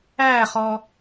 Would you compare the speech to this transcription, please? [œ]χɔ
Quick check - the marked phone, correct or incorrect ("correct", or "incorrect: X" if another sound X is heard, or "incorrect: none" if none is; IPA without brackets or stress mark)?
incorrect: æ